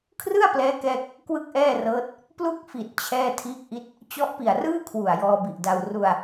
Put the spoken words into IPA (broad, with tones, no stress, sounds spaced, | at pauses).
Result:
kʰ r ɯ˥˩ a̯ p l ɛː˦˥ k ɛː˥˩ k̚ | k w ɯ˥˩ k̚ ʔ ɛː˥˩ r ɤː˦˥ t̚ | p l u˥˩ k̚ f i˨˩ t̚ t͡ɕʰ ɛː˥˩ tʰ iː˦˥ k̚ ʔ i˦˥ t̚ | t͡ɕ ɔ˦˥ ʔ p i˨˩ a̯ r ɯː˥˩ kʰ w u˨˩ a̯ j ɔː˧ b i˨˩ ʔ d a˧ w r u˧ a̯